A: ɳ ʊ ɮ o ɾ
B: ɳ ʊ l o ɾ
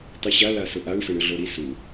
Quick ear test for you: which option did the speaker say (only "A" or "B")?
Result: A